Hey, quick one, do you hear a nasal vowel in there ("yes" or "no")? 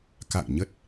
no